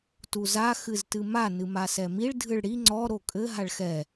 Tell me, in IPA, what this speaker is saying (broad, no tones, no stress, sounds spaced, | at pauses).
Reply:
t u z a x ɨ z t ɨ m a n ɨ m a s ɛ m i ɭ dʱ ɨ ɭ ɽ i ŋ͡ǀ ɔ ɾ o kʼ ɘ ɦ a ɭ x ɛ